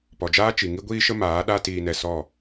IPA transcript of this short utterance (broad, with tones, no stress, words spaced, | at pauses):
pɔ˨d͡ʒaː˦t͡ʃi˨ ŋi˦ɡʷiː˦ʃə˦ maː˨˦ɗa˦ tiː˧nɛ˧sɔ˦˨